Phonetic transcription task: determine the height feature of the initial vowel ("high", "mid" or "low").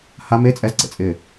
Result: low